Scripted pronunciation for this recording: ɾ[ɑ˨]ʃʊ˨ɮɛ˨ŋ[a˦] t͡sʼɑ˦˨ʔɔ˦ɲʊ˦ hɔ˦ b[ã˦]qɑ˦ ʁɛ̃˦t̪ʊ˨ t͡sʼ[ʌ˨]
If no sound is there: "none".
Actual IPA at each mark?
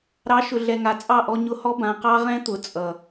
ɑ˨˦, a˨, ã˨, ʌ˨

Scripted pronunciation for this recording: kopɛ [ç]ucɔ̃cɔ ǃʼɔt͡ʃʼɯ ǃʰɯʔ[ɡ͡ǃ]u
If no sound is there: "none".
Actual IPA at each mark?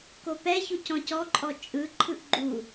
ç, ɡ͡ǃ

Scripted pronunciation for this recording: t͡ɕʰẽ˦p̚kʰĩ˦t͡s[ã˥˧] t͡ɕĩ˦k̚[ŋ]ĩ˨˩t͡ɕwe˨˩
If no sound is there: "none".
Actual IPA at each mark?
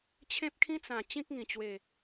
ã˨˩, ŋ

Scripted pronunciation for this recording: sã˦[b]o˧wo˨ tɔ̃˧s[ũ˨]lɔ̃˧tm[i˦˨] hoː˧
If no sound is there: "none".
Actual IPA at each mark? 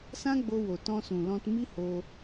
ɡ͡b, ũ˨, i˦

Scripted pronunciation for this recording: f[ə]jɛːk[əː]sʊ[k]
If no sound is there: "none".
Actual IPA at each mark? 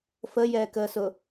ə, əː, none

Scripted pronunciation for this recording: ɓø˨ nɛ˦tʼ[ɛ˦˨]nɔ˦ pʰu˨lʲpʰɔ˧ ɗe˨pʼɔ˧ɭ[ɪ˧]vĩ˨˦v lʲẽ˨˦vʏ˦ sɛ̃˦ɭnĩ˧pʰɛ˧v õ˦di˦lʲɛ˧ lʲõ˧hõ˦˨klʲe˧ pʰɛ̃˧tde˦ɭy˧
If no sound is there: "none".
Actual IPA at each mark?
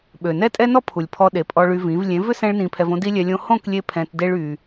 ɛ˦, y˧

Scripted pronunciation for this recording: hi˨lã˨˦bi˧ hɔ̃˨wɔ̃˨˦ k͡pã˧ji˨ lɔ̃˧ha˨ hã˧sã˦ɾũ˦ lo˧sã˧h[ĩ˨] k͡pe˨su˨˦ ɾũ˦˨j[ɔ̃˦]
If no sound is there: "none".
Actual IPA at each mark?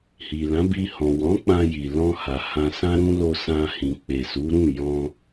ĩ˨, ɔ̃˧

